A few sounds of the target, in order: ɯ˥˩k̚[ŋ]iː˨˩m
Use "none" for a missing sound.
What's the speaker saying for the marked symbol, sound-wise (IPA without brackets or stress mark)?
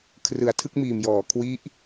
m